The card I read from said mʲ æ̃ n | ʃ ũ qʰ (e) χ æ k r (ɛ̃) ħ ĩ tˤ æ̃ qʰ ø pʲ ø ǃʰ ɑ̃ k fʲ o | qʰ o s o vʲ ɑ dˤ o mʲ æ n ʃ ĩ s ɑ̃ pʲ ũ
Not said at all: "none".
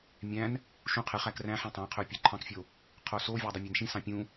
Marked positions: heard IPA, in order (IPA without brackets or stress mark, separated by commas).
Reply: e, æ̃